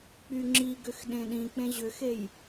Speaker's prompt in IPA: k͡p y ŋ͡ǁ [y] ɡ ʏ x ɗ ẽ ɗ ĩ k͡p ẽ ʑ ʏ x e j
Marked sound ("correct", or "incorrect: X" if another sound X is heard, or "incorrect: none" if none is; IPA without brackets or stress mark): incorrect: i